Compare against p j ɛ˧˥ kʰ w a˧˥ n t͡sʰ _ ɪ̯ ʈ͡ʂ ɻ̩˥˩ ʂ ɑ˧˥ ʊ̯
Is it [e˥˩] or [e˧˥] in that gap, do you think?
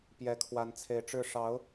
e˧˥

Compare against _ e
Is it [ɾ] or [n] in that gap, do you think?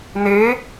n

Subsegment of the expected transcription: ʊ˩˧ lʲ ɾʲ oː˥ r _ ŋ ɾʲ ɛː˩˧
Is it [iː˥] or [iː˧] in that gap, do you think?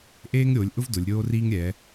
iː˥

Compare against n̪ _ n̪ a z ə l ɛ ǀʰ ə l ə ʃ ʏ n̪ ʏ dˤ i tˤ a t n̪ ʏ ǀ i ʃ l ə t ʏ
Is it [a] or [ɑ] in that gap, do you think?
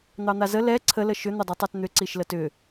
ɑ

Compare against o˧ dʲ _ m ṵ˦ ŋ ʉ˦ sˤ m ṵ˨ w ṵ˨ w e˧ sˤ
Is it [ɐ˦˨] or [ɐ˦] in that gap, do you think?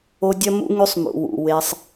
ɐ˦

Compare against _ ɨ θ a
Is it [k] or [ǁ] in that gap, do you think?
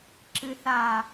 ǁ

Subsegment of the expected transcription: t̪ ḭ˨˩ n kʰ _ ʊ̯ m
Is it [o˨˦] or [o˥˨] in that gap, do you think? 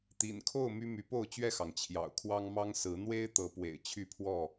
o˥˨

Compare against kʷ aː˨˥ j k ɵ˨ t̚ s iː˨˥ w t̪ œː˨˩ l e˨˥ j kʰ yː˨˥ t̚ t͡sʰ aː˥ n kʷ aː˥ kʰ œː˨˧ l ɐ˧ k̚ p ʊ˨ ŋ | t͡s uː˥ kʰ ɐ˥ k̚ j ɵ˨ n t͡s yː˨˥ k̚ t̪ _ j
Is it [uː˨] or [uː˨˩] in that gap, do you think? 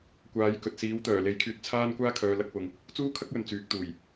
uː˨˩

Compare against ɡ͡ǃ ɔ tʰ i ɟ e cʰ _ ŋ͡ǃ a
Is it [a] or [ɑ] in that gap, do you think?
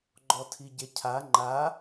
a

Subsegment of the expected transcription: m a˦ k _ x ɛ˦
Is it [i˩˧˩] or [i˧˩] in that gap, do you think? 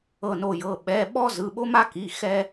i˩˧˩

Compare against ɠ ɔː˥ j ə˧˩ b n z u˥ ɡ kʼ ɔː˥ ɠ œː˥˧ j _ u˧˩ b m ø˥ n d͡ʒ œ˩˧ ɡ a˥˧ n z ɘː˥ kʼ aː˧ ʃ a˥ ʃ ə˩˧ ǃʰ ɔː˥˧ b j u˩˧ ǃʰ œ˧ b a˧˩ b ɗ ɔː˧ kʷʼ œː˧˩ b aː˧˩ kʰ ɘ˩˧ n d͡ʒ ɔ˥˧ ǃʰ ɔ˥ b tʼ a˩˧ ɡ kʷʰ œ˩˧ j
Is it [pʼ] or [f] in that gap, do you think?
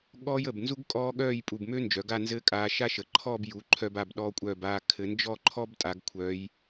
pʼ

